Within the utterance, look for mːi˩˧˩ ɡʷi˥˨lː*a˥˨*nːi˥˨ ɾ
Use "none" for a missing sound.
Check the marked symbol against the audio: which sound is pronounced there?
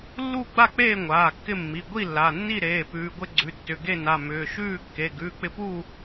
a˩˧˩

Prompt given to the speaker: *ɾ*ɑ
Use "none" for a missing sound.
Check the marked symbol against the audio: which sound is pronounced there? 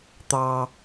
t̪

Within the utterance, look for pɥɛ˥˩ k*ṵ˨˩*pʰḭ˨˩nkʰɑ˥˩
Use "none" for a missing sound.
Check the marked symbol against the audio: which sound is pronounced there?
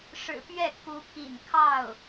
u˧˥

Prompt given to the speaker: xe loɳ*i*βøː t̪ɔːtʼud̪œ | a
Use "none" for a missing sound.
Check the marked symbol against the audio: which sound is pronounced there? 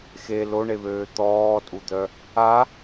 e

